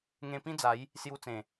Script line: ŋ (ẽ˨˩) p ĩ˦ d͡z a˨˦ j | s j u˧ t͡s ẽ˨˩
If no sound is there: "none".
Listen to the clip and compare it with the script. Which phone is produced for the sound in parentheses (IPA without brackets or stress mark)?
ẽ˧